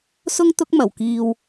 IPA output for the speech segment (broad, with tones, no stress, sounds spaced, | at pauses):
s ʊ˥ ŋ t̪ ʊ˥ k̚ m ɐ˨˩ w k iː˧ w